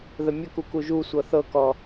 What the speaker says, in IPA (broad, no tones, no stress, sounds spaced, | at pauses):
ð ə mʲ ə k u k u ʒ u sʷ ɤ θ ɤ k ɔ